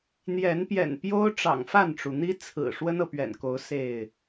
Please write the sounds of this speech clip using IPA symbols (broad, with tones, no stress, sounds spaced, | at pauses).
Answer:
n̪ j ɛ˨˦ n p j ɛ̰˨˩ n p j o˦ ʊ̯ ʈ͡ʂ ɑ̰˨˩ ŋ f a˥˨ n ʈ͡ʂ u˩ n̪ i˦ t͡sʰ ɹ̩˨˩ ʂ w ə˦ n ɤ˨ p ɥ ɛ̰˨˩ n k o˨˦ ʊ̯ s e˥˨ ɪ̯